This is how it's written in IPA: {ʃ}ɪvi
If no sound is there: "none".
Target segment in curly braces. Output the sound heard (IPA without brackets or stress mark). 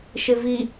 ʃ